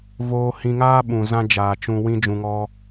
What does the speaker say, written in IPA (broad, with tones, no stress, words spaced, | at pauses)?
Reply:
voː˧hĩ˧ŋaː˦ɓũ˨ zã˧d͡ʒaː˨ t͡ʃũ˧ wĩ˦d͡ʒũ˧ŋɔ˦